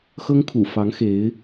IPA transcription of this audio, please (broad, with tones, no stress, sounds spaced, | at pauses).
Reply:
x ɤ˥ ŋ kʰ ṵ˨˩ f ɑ˧˥ ŋ x e˧˥ ɪ̯